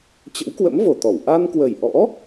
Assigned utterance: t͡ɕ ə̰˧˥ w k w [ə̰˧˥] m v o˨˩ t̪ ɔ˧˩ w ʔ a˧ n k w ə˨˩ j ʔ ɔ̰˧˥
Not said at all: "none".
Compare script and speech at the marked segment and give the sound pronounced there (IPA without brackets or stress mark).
ə̰˧˥